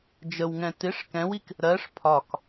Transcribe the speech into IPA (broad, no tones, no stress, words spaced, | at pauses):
d͡ʒəwŋɛ̃ tɪʂ kɛ̃wik | ɾɜʂ pʰɒk